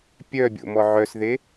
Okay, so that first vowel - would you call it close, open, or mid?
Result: mid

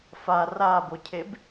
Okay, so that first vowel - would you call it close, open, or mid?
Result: open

